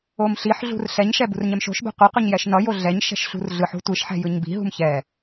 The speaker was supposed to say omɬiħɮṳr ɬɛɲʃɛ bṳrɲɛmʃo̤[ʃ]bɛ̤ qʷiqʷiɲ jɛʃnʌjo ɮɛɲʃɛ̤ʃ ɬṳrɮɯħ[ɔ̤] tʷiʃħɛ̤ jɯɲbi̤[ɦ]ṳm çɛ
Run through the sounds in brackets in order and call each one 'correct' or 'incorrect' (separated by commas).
correct, incorrect, correct